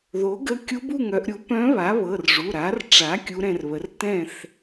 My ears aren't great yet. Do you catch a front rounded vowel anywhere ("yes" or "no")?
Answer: yes